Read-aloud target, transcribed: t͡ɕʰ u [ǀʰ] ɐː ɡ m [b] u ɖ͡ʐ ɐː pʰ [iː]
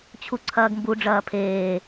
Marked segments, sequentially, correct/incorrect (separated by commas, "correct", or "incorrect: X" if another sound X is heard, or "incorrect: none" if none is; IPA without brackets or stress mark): correct, correct, incorrect: eː